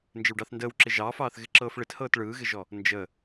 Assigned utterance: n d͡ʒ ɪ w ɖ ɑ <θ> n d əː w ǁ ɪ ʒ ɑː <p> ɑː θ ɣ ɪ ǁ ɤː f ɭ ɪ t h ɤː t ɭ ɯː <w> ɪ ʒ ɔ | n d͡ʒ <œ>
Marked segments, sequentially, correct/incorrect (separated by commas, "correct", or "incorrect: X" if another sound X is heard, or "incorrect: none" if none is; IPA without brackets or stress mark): correct, incorrect: f, incorrect: ɣ, incorrect: ə